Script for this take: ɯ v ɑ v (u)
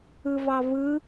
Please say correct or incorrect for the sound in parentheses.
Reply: incorrect